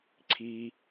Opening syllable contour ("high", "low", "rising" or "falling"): low